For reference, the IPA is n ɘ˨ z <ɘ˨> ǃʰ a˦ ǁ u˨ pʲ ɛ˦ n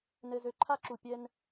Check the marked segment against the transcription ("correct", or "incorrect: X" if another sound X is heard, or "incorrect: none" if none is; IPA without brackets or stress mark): incorrect: ø˨